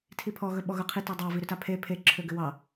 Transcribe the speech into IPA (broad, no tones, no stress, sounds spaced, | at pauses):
tʰ i pʰ ɔ ɣ ɵ ɓ ɔ ɣ ɵ qʰ i t ɔ dˤ ɑ v i ɾ ʏ t a pʰ e pʰ e ǁʰ ø ɡ ʏ w ɑ